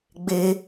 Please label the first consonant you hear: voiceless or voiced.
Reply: voiced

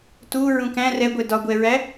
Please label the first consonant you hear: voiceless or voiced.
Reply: voiceless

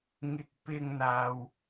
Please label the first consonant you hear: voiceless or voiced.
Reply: voiced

